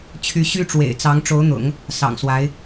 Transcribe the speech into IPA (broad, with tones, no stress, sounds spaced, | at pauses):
t͡ɕʰ y˧˥ ɕ y˥ ʈ͡ʂ w ḛ˨˩ ɪ̯ t͡s ɑ˧˥ ŋ ʈ͡ʂ o˧˥ ʊ̯ n̪ ʊ̰˨˩˦ ŋ | s ɑ̰˨˩ ŋ s w a˧˥ ɪ̯